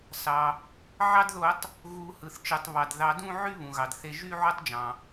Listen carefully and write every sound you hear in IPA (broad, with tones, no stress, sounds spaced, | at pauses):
s ɑ˩ | ʕ ɑ˧ d ð o˨˩˦ tˤ | ɣ u˨˩˦ h ɯ˩ θ t͡ʃ ɯ˩ tˤ β ɑ˩ d ð ɑ˨˩˦ d ũ˥˧ ʕ y˥˧ β ũ˩ ɣ ɑ˩ d θ e˧ ʒ y˥˧ ʕ o˥˧ tˤ d͡ʒ ɑ̃˩